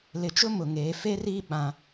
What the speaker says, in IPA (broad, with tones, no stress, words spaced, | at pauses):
lɪ˨t͡ʃʊ˦ mʊ˨ŋeː˨˦ fe˦riː˦ ɓã˦